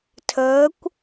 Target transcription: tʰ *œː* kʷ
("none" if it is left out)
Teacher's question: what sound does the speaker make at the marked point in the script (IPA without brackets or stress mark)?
əː